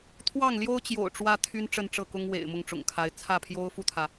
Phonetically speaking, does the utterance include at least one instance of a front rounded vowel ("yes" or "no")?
yes